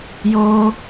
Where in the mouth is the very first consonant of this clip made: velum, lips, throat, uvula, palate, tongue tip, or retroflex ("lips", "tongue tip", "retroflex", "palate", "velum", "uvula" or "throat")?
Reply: palate